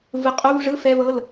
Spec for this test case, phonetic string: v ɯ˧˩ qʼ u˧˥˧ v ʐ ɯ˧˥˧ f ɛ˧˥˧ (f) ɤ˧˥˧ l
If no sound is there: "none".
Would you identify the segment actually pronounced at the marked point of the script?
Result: v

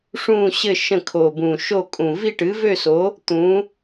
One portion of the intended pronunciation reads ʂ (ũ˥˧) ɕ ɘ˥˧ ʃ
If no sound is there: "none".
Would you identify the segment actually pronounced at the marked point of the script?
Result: ũ˥˧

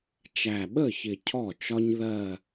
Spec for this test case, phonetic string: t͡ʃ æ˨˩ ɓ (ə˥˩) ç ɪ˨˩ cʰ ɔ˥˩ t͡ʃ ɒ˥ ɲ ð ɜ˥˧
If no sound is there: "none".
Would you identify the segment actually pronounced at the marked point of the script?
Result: ə˥˩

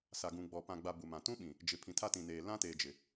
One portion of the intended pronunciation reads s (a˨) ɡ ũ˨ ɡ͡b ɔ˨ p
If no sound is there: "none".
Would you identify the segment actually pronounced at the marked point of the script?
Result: a˨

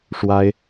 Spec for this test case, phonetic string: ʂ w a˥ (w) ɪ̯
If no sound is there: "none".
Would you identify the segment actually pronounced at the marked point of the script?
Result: none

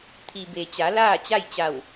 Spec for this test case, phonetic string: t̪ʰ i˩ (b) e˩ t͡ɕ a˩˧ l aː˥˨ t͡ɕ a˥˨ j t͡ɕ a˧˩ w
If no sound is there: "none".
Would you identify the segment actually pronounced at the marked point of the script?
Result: b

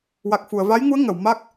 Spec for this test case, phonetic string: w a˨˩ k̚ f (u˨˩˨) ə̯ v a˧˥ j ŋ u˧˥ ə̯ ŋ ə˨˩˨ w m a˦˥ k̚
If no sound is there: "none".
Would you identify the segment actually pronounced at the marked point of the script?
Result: u˨˩˨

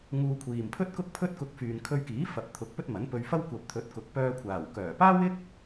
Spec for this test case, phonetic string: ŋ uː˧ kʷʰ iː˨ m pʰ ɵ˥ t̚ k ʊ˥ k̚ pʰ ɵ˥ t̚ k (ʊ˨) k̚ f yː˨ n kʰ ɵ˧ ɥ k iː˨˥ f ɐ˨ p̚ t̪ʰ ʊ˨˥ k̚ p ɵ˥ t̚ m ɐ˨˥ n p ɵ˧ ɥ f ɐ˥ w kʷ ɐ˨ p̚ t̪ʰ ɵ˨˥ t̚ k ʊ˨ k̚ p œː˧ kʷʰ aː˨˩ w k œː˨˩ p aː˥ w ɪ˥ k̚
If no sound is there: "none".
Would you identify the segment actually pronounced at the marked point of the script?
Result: ʊ˧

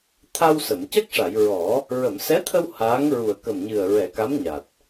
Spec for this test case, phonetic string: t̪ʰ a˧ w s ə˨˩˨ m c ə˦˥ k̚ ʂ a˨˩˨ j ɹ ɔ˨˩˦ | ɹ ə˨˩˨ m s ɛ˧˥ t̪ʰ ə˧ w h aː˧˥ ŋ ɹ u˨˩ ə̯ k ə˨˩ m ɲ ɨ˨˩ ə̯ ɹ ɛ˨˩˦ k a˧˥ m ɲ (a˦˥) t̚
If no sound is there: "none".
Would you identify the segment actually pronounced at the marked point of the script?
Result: a˨˩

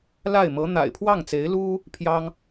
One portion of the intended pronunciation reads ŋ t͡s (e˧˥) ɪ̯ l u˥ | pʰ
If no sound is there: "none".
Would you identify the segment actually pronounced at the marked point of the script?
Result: e˧˥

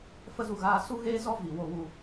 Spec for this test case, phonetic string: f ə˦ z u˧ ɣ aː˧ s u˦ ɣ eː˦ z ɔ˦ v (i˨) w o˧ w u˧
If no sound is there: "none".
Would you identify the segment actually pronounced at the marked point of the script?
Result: i˨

